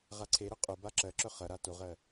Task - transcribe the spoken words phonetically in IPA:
ʁ a ǀʰ e ɾ œ qʼ o b a ǁ ɜ ǁ œ χ ɐ ɾ a t o ʁ ɜ

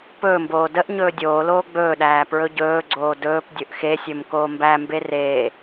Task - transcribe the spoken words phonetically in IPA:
p ɵː m b oː d ə ʔ ɲ ɵː dʲ oː l oː ɡ͡b ɵː ɗ æː p ɹ ɵ ɟ ɵː ɡ͡ǀ oː d ɵː p dʲ ɵ ʔ x e sʲ ɵ m k oː m b æ m b e r e

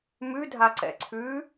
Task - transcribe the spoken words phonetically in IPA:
m ʉ dʱ a ǀ ɛ̰ ǀʰ ʉ

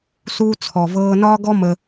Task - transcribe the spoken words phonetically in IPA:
s uː˧ t͡sʰ ɔ˨ v ɤː˧ n ɒː˦ ɡ ɔ˦ m ə˧

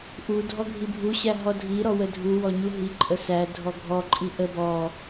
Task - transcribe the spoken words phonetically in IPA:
ʔ u dʱ ɔ ɡʱ i bʱ u ɕ æ ɦ ɔ dʱ i ɾ ɔ w ə dʱ u w ɔ ɲ u ɦ i ǃʼ ə s æ dʱ ɔ ɡʱ ɔ ǃʼ i ʔ ə b ɔ

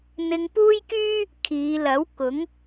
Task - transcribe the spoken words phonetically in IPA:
n̪ ɪ˧ ŋ p uː˥ j k yː˥ | kʰ iː˨˧ l ɐ˨˥ w k ʊ˨˥ ŋ

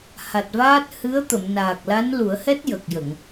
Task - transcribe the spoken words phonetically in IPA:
h a˨˩ t̚ v aː˦˥ t̚ h ɨ˧˥ ə̯ t̪ ə˨˩˨ m n aː˨˩ k̚ l a˧˥ n l u˨˩˦ ə̯ h ɛ˦˥ t̚ j ə˨˩ k̚ j ə˨˩˨ ŋ

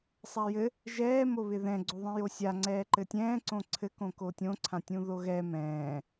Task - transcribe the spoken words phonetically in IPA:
sˤ a j ɘ | ʒ ɛː m o β ɪ ð ɛ̃ ɡ͡ǀ o ðˤ ĩ j o sʲ a ŋ͡ǀ ɛː ǃ ɘ tʲ ɛ̃ː ǀ õ ǀʰ ɘ k õ k o tʲ õ ǀʰ ã tʲ ũ ð o ɣ ɛ m ɛ̃ː

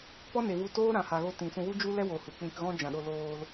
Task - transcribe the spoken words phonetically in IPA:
p ɔ˦ n e˨ v u˧ t oː˦ ɾ ã˨ h a˨ ɣ o˧ t ĩ˨ s ũ˧ w u˦ d͡ʒ u˦ l ɛ˦ w o˨ h u˨ k͡p ĩ˧ k ɣ ɔ̃˦ d͡ʒ ã˨ ɗ o˧ l oː˧ l

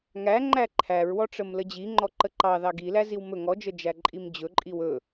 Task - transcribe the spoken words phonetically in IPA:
ŋ æ ŋ͡ǃ æ ǃʰ æ ɹ w ɔ ʈ͡ʂ ə m l ə d͡ʑ i ŋ͡ǃ ɔ ǃ ə ǃ ɑ ð ɑ ɡ i l æ z i w m ɵ ŋ ɔ d͡ʒ ə d͡ʒ æ ǃʼ i m d͡ʑ ɵ ǃʼ i w ɵ

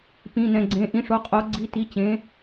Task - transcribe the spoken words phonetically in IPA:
p ĩ˩˧˩ n ɛ̃˩˧˩ ɡ͡ǀ ẽ˩˧˩ ʔ ĩ˩˧ ʂ o˩˧ qʼ o˩˧ ɡ͡ǀ i˩˧˩ t i˩˧˩ t͡ɕ ẽ˩˧

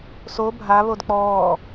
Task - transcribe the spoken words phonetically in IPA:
s o bʱ a β o d k͡p ɔː

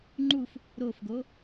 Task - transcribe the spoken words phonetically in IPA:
ŋ͡ǃ u f | ɾ o f ɡ o

